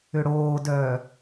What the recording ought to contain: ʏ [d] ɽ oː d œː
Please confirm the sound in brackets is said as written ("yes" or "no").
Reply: no